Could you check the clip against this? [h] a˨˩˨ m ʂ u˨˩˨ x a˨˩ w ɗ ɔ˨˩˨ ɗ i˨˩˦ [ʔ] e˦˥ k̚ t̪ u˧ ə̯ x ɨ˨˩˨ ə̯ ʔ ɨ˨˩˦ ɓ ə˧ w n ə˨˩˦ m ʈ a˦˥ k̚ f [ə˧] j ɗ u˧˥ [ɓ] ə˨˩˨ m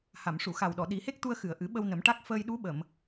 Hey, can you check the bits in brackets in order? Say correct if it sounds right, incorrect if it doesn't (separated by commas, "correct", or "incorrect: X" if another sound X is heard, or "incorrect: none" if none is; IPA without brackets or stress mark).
correct, incorrect: h, incorrect: əː˧, correct